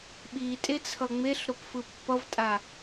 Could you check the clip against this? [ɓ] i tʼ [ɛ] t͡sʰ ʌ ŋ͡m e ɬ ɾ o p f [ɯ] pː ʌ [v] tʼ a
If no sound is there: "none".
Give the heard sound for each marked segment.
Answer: ɓ, e, ɯ, v

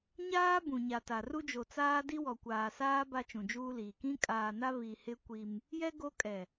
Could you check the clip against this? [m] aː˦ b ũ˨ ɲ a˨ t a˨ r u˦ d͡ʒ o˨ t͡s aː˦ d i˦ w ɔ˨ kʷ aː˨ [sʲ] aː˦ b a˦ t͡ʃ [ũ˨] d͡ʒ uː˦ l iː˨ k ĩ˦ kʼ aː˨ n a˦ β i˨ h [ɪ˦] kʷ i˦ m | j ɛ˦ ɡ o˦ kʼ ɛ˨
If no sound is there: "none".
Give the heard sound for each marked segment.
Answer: ɲ, s, ũ˨, ɪ˦

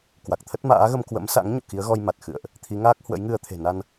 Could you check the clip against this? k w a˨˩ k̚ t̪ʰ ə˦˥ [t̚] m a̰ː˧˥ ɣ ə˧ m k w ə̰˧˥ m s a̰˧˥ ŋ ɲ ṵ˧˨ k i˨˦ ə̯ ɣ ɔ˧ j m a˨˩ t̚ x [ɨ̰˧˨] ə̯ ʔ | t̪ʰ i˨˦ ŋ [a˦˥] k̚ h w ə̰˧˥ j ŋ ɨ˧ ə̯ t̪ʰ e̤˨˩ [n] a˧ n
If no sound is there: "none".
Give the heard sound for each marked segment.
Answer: t̚, ɨ̰˧˨, aː˦˥, n

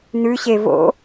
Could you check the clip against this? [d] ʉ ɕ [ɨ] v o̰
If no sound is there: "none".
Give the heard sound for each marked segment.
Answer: n, e

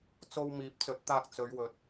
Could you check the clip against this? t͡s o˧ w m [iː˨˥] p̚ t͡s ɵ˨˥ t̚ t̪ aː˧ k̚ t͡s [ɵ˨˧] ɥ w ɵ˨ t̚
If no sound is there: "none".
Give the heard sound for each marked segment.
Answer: iː˨˥, ɵ˨˧

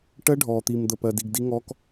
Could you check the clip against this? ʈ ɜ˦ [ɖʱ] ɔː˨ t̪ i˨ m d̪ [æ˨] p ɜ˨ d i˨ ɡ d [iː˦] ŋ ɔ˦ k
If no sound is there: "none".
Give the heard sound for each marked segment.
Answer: ɖʱ, ə˨, i˦

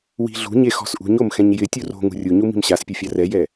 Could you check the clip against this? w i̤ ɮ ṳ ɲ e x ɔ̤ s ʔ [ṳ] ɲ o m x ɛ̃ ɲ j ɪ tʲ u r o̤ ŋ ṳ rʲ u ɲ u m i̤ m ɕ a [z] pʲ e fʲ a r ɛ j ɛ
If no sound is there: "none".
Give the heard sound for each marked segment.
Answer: ṳ, s

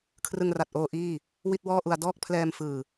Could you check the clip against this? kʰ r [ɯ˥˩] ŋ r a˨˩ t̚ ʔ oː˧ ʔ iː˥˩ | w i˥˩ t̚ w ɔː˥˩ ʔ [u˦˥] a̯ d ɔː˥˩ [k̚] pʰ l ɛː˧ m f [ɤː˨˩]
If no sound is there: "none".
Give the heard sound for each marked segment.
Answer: ɯ˧, u˧, k̚, ɯː˨˩

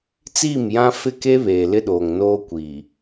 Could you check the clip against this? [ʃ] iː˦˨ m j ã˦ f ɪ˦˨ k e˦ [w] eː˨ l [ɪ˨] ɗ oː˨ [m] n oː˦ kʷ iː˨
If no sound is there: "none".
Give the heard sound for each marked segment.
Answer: t͡s, β, ɪ˦, ŋ

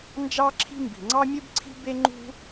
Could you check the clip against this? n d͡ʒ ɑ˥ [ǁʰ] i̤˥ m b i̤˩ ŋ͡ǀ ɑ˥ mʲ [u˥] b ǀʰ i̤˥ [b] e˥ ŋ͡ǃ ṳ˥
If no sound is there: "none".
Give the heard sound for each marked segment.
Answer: ǁʰ, u˥, b

